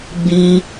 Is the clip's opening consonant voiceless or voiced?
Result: voiced